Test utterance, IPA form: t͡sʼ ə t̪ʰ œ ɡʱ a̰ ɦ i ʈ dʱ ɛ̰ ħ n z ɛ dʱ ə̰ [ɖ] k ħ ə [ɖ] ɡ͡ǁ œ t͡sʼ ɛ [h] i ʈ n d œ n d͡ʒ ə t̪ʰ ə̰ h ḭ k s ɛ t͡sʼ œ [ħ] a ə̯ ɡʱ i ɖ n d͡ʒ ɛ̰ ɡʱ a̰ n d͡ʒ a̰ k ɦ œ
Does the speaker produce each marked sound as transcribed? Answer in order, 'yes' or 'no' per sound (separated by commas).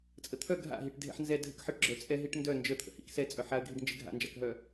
no, no, no, yes